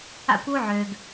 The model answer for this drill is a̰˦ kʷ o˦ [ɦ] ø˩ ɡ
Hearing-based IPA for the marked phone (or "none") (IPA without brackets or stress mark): ʕ